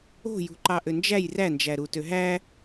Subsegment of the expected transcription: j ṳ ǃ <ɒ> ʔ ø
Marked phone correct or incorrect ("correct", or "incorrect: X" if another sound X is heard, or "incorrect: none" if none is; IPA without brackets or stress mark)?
incorrect: ɑ